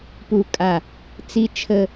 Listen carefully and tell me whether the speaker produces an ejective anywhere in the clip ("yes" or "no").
yes